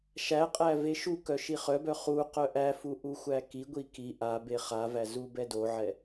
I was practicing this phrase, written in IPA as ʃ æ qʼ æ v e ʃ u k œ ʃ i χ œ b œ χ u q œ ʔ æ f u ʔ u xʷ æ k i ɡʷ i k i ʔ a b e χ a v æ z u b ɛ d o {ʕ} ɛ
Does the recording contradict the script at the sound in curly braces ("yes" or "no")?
no